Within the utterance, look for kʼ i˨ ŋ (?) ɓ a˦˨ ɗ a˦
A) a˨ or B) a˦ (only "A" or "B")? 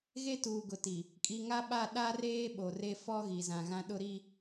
B